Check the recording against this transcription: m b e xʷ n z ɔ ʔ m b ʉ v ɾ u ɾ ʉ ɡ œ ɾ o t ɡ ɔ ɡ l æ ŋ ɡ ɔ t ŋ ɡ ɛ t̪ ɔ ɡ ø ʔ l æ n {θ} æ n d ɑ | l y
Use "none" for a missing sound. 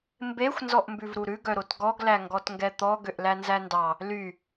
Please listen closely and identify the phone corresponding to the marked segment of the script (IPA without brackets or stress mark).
z